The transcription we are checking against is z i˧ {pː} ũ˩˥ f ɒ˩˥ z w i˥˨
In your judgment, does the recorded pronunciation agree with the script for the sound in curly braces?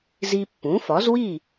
yes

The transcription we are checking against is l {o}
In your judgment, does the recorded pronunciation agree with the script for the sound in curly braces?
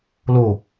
yes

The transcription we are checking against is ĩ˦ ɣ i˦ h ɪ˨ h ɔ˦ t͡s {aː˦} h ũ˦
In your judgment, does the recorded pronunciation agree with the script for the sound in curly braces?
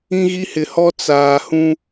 no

